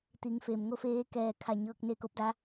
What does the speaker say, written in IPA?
t̪ i˩˧ ŋ f e˩ m ŋ o˥˨ f eː˧ k ɛː˧˩ kʰ a˧˩ ɲ ɤː˧ k̚ n e˥˨ k o˧˥ p̚ d a˧˥

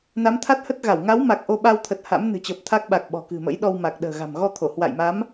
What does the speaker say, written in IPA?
n a˨˦ m t̪ʰ a˦˥ t̚ h ə˦˥ t̚ ɣ a˧˩ w ŋ a˨˦ w m a˨˩ k̚ ʔ o˧ ɓ a˧ w t̪ʰ ə˨˩ t̚ h a̰˧˥ m n ɨ̤˨˩ t͡ɕ əː˨˩ p̚ t̪ʰ a˦˥ k̚ ɓ a˨˩ k̚ ɓ ɔ̤˨˩ k ɨ̤˨˩ m ə̰˧˥ j ɗ ɔ˧ w m a˨˩ k̚ ɗ ə̤ː˨˩ ɣ a̤˨˩ m ɣ ɔ˧ t̪ʰ o˧˩ h w a̰˧˨ j m a˨˦ m

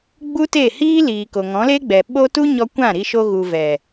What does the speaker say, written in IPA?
ɡ͡b u˦ t e˦˨ h iː˦ l iː˨ k o˨ ŋ ɔ̃˨˦ l e˦ ɡ͡b ɛ˨ ɓ o˦ t u˦ ɲ ɔ˧ kʷ ã˦˨ ɾ i˧ ʃ o˧ ɣ u˨ v ɛ˨

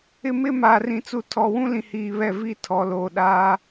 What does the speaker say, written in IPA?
ɪ˦ m ɪ˦ m aː˨ r ĩ˨ t͡s u˨ tʰ ɔ˨ w ũ˦ l ĩ˨ h iː˨ β ɛ˦˨ v i˦ tʰ ɔ˨ l oː˨ ɗ aː˦

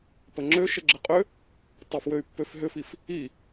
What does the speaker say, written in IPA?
p ə ŋ͡ǁ ø ʃ ɘ ɡ͡ǁ ɘ qʼ ø | tˤ ɘ f w ø y̯ pː ø f ɦ ʏ f i f | i

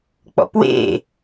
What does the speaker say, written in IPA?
k͡p ɔ̰ p w ḛ

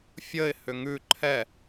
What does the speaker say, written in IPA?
fʲ ə ɪ̯ h ʏ ŋ ʉ ǃʰ ɛ

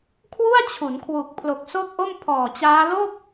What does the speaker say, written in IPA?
kʰ w u˥˩ a̯ t͡ɕʰ u˩˦ n kʰ w u˨˩ k̚ pʰ l o˨˩ k̚ s o˥˩ k̚ ʔ o˥˩ m pʰ ɔː˨˩ t͡ɕ aː˦˥ l o˥˩ k̚

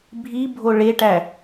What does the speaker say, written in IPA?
bʱ i bʱ o ɭ e ʈ æ

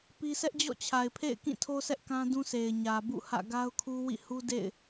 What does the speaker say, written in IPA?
p i˦ s ɛ˦ ʔ d͡ʑ ɔ̰˦˨ t͡ɕʰ a˨ ɪ̯ pʰ ḛ˦˨ ɪ̯ k ĩ˦˨ tʰ o˦ s ɛ˦ ʔ k ã˦ d ũ˦ sʰ e˨ ɪ̯ ɲ ä˨ b ṵ˦˨ h ä̰˦˨ ɡ a˦ ʊ̯ kʰ u˦ w ḭ˦˨ h u˦ d ḛ˦˨ ɪ̯

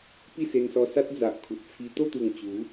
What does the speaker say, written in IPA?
p i˥˧ s e˧ n s ɔ˧ s a˦ t̚ d͡z a˨ ʔ kʰ u˨ t̚ t͡sʰ i˧ t̪ o˥˧ t̪ u˨˩ ŋ t͡ɕ u˨˦

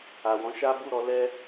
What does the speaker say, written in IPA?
a˨ w ɔ̃˨˦ ʃ a˦ b u˦˨ ɾ ɔ˧ l ɛ˦

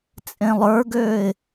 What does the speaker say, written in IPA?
t͡sʼ ẽ lˠ ə˞ ɡ øː ɪ̯

